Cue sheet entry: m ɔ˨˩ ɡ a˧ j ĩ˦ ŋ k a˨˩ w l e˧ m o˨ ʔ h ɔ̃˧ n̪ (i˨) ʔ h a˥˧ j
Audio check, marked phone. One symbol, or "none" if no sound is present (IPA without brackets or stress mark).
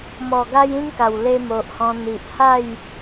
i˨